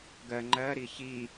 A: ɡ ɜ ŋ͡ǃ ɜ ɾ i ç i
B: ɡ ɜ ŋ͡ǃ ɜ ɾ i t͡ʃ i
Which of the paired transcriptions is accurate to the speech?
A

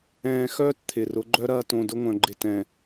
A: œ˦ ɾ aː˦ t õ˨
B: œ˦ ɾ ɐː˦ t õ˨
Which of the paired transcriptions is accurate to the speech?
B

